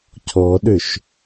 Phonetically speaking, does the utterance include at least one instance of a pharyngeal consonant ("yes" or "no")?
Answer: no